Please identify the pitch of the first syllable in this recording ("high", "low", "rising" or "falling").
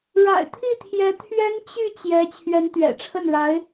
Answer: low